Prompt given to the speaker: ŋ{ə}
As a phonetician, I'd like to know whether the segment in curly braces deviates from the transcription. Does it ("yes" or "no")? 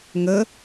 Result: no